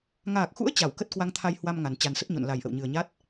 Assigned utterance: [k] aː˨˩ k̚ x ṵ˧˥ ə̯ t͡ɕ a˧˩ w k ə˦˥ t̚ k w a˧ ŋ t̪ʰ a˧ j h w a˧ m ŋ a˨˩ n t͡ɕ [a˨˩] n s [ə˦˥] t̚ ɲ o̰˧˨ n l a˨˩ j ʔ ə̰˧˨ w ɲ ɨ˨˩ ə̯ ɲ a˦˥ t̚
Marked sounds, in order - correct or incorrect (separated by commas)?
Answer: incorrect, correct, correct